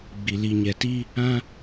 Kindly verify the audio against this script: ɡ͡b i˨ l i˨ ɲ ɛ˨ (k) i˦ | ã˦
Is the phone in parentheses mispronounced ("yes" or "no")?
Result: yes